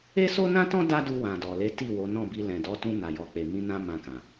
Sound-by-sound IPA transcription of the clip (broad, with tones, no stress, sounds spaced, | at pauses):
e˦ s o˦ n ã˦ t ɔ̃˦ d a˦ d u˧ w ã˨ d ɔ˨ l e˨˦ t i˦˨ w o˨˦ n ɔ̃˦˨ b i˧ l ɛ̃˨ d ɔ˨˦ t ũ˧ n a˨ j ɔ˨ k͡p e˨ m ĩ˧ n ã˧ m ã˧ k ã˨